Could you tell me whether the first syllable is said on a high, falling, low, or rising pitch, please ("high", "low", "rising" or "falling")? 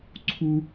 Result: high